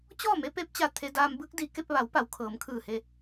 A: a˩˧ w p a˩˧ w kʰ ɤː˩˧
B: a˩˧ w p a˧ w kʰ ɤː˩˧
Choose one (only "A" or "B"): A